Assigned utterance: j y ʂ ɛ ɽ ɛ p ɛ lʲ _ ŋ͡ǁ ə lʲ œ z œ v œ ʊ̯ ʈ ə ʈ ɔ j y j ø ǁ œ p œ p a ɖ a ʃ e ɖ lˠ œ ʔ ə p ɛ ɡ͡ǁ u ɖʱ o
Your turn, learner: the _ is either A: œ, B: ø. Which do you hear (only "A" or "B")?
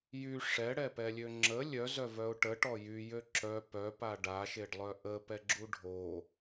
B